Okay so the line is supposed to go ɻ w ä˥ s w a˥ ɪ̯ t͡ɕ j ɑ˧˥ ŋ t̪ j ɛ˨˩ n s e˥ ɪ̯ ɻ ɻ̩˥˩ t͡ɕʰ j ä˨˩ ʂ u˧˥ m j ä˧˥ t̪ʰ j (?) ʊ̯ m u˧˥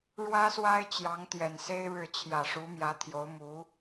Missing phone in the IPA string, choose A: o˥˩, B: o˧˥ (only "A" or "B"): B